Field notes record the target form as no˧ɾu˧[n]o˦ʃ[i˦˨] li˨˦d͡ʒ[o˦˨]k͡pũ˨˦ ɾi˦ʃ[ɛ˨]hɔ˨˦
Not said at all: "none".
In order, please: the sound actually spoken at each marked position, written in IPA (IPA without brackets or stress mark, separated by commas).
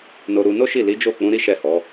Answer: n, i˦˨, o˦˨, ɛ˦˨